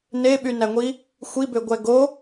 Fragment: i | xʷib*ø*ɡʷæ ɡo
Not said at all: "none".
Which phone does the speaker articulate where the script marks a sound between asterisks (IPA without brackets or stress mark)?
ø